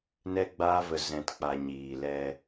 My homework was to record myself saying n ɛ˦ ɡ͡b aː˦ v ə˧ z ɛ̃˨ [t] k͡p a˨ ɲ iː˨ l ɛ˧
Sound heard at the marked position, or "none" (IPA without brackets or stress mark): t